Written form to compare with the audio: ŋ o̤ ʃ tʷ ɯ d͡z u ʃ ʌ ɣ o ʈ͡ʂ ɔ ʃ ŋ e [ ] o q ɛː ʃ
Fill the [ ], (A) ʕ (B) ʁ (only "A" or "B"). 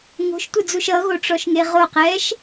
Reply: B